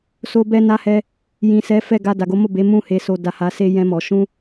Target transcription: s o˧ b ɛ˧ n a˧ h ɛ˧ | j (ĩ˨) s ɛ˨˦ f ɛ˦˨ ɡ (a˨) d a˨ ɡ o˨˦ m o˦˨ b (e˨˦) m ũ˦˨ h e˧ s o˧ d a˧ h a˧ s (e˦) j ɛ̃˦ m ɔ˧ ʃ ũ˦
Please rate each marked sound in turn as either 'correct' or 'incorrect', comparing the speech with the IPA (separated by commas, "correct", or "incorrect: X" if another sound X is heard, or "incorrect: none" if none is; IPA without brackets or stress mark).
correct, incorrect: a˧, correct, correct